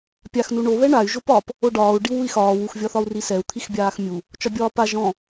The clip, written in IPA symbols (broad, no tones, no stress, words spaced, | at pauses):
pʲaxnu ɳo βɛɳay̯ ʒopɒp | oɖɒːu̯ɖiw ui̯xɒːw uxvʲɒθɒu̯ risɛu̯ t̪ʰixbʲaːxmʲu | t͡ʃɒbʲɒːpa ʒɔ̃